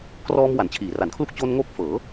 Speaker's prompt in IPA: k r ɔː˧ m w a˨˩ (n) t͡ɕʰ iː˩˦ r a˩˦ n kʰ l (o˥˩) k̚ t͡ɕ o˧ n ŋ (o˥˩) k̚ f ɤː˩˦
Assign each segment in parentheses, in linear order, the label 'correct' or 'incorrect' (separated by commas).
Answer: correct, incorrect, incorrect